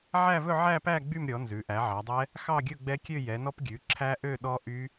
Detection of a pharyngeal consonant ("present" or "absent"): present